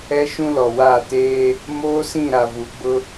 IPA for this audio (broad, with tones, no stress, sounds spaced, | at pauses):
ɛ˦ ʃ ũ˦ l ɔ˨ w a˦˨ t eː˦ | m oː˦ s ĩ˦˨ ɾ a˨ v u˨ ɡ͡b ʊ˦